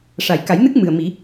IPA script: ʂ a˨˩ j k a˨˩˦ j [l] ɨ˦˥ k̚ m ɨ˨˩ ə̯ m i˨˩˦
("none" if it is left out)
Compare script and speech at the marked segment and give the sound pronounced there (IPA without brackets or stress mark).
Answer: n